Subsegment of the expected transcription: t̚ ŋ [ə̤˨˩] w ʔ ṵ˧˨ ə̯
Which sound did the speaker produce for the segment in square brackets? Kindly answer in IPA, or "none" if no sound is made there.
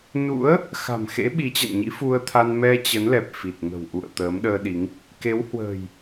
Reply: ə̤˨˩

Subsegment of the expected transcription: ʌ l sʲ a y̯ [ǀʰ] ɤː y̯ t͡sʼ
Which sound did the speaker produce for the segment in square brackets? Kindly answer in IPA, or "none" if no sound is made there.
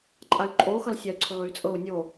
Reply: ǀʰ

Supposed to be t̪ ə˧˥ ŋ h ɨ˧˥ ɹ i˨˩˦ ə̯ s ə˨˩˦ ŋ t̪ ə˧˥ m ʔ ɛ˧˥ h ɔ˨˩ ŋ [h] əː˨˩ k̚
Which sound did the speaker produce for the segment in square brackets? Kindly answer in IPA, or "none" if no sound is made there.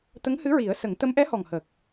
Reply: h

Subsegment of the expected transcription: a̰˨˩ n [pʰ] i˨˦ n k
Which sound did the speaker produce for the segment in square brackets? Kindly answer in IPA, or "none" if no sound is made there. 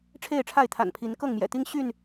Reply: pʰ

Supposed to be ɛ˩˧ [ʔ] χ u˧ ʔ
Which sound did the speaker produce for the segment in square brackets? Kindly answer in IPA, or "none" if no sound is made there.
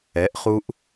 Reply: ʔ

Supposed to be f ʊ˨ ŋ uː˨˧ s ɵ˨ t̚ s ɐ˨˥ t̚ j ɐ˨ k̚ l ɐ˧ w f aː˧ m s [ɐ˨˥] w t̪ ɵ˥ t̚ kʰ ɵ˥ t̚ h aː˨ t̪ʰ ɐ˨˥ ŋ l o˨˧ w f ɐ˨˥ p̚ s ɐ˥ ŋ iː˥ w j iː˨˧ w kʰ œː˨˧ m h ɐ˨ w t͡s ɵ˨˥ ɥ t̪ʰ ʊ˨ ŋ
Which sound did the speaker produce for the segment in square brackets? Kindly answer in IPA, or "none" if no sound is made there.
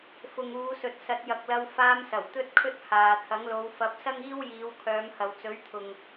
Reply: ɐ˨˩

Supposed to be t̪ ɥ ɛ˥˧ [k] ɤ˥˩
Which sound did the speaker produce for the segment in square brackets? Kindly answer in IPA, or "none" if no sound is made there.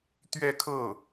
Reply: kʰ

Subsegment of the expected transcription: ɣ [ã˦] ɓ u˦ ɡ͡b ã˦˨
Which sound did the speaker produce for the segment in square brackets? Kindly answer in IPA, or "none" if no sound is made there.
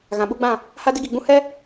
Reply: ã˨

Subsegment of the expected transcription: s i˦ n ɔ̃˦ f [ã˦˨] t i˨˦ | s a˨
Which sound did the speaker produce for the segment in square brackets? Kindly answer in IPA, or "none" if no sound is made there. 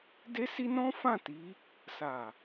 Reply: ã˦˨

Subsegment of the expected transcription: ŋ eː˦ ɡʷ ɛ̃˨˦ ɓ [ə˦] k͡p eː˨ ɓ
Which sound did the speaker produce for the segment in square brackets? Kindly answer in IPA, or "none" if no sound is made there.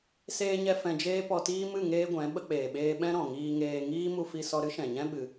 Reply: ə˧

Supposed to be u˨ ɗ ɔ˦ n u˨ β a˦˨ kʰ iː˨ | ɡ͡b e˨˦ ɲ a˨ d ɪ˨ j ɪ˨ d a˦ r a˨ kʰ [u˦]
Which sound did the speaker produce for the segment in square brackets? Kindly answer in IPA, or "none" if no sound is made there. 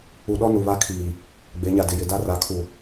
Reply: u˨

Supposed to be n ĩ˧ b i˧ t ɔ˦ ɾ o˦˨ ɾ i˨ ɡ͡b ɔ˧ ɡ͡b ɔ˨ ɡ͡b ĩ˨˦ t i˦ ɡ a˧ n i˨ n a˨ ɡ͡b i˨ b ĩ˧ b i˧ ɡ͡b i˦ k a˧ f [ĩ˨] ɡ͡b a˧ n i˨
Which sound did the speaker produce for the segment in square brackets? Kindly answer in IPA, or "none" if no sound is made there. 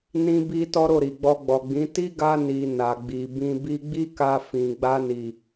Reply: ĩ˨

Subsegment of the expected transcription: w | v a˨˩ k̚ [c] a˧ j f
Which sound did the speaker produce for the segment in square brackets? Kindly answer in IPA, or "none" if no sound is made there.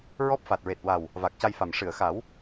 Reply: c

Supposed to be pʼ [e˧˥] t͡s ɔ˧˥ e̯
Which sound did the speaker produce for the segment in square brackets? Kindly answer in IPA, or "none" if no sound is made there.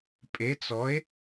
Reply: e˧˥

